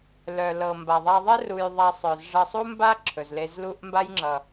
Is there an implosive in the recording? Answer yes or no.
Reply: no